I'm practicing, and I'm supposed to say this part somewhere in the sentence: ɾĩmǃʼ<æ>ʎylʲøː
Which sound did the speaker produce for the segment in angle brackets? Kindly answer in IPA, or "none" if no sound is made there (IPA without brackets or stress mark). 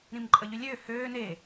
ə